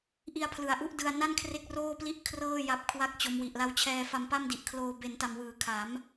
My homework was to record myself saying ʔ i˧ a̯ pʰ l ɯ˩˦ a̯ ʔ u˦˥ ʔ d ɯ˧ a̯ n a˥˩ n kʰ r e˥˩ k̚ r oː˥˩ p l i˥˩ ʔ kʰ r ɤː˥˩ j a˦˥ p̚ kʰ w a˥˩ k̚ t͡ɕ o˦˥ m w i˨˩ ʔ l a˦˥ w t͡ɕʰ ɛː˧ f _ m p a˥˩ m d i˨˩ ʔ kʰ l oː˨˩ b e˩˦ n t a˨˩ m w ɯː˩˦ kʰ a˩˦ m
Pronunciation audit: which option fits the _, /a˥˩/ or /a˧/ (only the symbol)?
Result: a˧